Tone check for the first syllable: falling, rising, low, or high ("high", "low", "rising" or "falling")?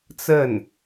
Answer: falling